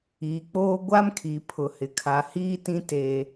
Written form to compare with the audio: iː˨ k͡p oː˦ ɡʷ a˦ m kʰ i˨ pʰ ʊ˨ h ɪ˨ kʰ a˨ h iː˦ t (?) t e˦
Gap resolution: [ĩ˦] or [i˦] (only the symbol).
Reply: ĩ˦